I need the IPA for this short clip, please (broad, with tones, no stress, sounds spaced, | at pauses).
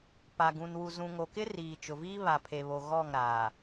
p a˨ ɡ ũ˨ n w u˨ z ũ˨ ŋ o˨ k ɪ˦ r iː˨ t͡ʃ ʊ˨ v iː˦ β a˨ pʰ e˨ β o˨ ɣ ɔ˦˨ ŋ ɾ aː˨